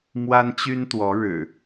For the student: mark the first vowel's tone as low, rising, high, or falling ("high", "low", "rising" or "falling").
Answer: high